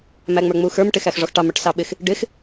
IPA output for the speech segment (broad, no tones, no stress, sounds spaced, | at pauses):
m æ ŋ͡m ə˞ ŋ͡m u x ə˞ m ʈ ɪ x æ x ʐ ɔ x ʈ ɑ m ə˞ ʈ s ɑ ɓ ɪ x | ɖ ɪ x